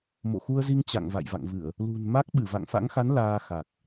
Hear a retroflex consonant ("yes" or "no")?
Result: no